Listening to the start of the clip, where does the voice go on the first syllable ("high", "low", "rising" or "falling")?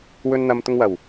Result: high